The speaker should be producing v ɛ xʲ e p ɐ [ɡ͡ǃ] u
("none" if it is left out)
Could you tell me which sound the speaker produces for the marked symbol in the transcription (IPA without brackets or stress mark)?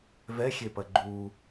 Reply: ɡ͡ǃ